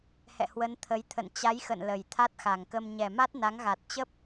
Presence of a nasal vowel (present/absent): absent